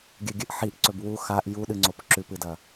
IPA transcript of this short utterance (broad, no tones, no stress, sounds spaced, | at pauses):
ɡʲ ɨ ɡʲ ɨ ʔ ħ i ʔ ǀ ɵ b w u x a ʔ j u ɗ ɨ ŋ͡ǀ o p ǁ ʉ p ɨ d ɐ